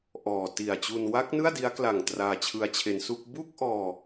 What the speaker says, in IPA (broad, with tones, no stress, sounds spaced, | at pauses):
ʔ ɔː˨˩ t i˨˩ a̯ t͡ɕ u˧ n w a˦˥ k̚ n ɯ˥˩ a̯ d i˦˥ a̯ k l a˨˩ ŋ t r aː˧ t͡ɕʰ ɯ˧ a̯ t͡ɕʰ e˧ n s u˥˩ k̚ b u˥˩ k̚ ʔ ɔː˧